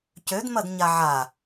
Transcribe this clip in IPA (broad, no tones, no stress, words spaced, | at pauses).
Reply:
cød mɐdɲaʕa